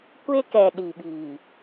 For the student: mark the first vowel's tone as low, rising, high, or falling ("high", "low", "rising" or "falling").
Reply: high